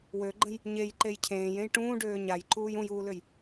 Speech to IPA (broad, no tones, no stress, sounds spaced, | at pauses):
w ø ɡ͡ǃ ə̃ j | ɲ e j ǃ e j cʰ ẽː j ẽ j ʈ ũː ɖ øː ɲ a j ǃ uː j ũ j uː l ø j